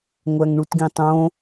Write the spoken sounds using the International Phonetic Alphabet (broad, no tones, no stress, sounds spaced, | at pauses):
ŋʷ æ ŋ ɳ u t ɡ ĩ tˤ õ